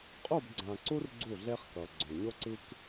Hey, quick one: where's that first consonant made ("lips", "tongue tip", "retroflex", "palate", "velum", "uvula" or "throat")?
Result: uvula